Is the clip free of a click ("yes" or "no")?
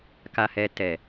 yes